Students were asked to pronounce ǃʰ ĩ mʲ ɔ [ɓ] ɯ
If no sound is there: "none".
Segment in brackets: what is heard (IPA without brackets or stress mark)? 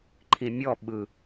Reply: ɓ